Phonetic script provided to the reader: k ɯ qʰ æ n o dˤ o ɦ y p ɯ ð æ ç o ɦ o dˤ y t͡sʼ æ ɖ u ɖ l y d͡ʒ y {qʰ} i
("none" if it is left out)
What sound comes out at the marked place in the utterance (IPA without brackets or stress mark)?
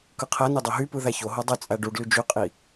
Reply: qʼ